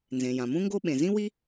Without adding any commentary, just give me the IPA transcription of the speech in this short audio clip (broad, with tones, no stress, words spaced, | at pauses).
nzẽ˩jã˩mũ˥ŋɡo˥ ɓẽ˩zĩ˥wi˥